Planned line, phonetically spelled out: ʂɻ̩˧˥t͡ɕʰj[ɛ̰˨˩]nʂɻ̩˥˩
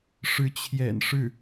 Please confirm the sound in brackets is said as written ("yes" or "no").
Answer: yes